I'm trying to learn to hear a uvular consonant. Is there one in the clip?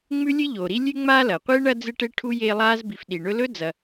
yes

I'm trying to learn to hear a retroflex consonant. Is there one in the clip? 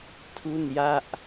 no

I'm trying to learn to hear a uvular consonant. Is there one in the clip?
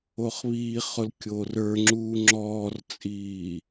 yes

